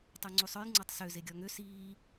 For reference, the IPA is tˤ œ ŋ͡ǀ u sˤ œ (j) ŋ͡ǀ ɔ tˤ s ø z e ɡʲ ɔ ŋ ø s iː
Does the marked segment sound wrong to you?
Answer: no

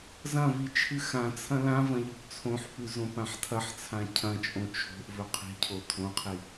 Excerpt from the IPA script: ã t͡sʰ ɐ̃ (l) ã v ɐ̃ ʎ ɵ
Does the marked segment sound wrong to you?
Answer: no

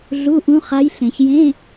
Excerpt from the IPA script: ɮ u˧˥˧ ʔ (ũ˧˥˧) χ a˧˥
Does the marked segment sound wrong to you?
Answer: yes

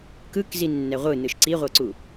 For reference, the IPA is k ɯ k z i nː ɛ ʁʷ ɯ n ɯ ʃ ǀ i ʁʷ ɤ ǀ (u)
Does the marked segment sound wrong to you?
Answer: no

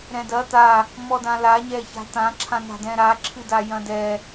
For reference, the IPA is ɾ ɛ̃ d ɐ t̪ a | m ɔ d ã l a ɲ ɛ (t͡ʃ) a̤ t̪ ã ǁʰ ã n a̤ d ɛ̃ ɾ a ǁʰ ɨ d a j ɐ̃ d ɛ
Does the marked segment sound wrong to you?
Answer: yes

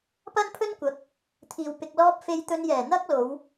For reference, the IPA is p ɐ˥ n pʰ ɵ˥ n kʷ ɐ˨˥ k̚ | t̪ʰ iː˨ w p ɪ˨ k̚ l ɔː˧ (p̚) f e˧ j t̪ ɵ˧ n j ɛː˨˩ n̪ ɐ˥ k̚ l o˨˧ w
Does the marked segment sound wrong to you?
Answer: no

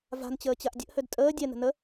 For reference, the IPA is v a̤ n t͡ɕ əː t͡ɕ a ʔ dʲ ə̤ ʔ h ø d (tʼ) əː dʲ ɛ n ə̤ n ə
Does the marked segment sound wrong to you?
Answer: no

